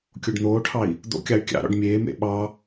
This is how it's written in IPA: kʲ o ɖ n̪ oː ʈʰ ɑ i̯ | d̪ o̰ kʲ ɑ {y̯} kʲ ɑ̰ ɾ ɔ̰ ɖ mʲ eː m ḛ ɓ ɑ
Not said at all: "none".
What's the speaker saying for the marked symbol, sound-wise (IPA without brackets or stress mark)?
y̯